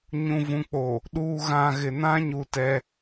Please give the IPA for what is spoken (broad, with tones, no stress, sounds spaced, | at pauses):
ɲ ũ˨ v ũ˨ k͡p o˨ | ɗ uː˨ ɣ ã˨ ɣ ɪ˨ n ã˦ ɲ u˦ t ɛ˦